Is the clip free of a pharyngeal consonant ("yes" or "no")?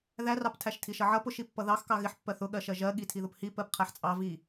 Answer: no